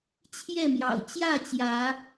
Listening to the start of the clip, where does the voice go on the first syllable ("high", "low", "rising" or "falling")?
falling